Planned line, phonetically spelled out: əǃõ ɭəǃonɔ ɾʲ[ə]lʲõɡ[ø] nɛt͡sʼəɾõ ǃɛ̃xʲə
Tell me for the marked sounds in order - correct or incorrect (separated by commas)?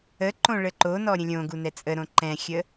incorrect, incorrect